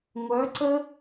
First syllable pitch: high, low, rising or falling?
rising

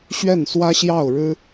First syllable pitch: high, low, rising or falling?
falling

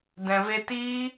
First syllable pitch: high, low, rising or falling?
low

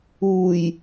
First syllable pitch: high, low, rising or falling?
low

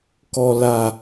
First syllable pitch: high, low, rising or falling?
low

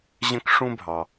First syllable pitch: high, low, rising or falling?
high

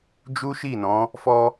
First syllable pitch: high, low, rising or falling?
high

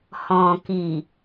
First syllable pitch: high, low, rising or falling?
low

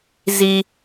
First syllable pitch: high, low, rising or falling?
high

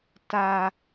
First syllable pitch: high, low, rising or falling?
high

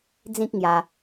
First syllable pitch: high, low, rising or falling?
high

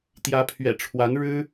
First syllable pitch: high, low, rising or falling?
rising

